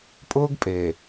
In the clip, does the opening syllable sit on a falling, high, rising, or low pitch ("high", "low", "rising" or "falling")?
high